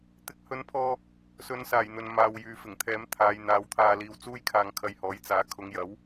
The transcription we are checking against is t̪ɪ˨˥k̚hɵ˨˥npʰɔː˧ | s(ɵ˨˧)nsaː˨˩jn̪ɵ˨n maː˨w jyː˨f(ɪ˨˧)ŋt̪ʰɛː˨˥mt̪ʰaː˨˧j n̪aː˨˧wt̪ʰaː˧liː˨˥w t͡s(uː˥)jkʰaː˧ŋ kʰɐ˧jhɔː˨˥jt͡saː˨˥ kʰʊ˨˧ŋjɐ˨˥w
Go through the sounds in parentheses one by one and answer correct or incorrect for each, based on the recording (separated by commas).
correct, incorrect, correct